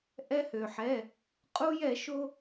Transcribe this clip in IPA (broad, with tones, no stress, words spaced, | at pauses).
ʔɛ˧hø˩ħɛ˩˧˩ | qʼu˧jɛ˧˩˧ʃo˧